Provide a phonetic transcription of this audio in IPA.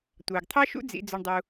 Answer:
tʷ ɑ˨ ɡ t̪ʰ ɑ˦ ʃ ṵ˦ d͡z ḭ˧ d͡z ɵ˧ ɳ dˤ u˧

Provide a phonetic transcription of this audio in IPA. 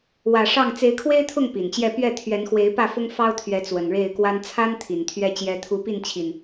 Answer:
w ä˨˩ ʂ ɑ˥˨ ŋ t͡s e˨˦ ɪ̯ kʰ w e˦ ɪ̯ t̪ʰ ʊ˥˨ ŋ p i˨˩ n t͡ɕ j ɛ˥˨ p ɥ ɛ˥˨ t̪ʰ ɥ ɛ˨˦ n x w e˨˦ ɪ̯ p ä˥˨ f ʊ˦ ŋ f ɑ˦ ʊ̯ t̪ʰ ɥ ɛ˨˦ t͡s w ə˨˩ n ɻ e˥˨ ɪ̯ k w a˦ n t͡sʰ a˦ n t̪ʰ i˨˩ n t̪ʰ ɥ ɛ˥˨ t͡ɕ j ɛ˨˦ t̪ʰ u˨˦ p i˥˨ n t͡ɕʰ i˨˩ n

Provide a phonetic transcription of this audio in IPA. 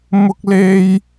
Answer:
m ʊ˥ k̚ l e˥ j

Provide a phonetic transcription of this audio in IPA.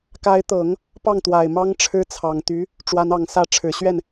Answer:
k a˧˥ ɪ̯ t̪ ɤ˨˩˦ ŋ | p ɑ˥˩ ŋ t̪ w a˨˩ ɪ̯ m ɑ˥ ŋ ʈ͡ʂʰ ɻ̩˥ t͡sʰ ɑ˨˩ ŋ t̪ y˧˥ | ʈ͡ʂ w a˧˥ n ɑ˨˩ ŋ s ä˥˩ ʈ͡ʂʰ ɻ̩˨˩ ɕ ɥ ɛ˥˩ n

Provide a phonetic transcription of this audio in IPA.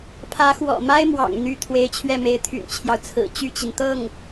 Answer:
pʰ ä˧˥ x w ɔ̰˨˩ m a˥ ɪ̯ m w ɑ̰˨˩ ŋ n̪ y˧˥ t̪ʰ w e˧˥ ɪ̯ t͡ɕʰ ɥ ɛ˥˩ m e˧˥ ɪ̯ t̪ʰ y̰˨˩ n t͡ɕʰ j ɑ˦ ʊ̯ t͡sʰ ɹ̩˨˩ t͡ɕ y˥˩ t͡ɕ i˩ n t̪ ɤ˥˩ ŋ

